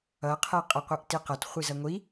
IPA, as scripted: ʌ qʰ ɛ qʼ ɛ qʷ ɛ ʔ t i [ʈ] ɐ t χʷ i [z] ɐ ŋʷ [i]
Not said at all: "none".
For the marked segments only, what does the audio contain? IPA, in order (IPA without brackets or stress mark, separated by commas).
q, z, i